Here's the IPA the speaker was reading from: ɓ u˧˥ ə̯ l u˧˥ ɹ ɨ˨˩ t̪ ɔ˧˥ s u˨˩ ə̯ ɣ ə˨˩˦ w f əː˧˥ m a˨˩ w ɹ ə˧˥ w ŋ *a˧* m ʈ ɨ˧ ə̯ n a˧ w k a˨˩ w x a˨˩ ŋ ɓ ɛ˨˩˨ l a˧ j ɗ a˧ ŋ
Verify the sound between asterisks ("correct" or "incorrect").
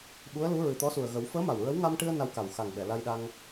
correct